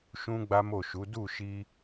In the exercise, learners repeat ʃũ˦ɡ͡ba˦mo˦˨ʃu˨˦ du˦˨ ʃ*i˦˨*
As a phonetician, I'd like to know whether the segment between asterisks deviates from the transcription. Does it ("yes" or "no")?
yes